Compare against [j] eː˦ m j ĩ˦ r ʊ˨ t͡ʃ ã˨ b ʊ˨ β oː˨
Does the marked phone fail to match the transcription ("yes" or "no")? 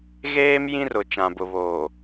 yes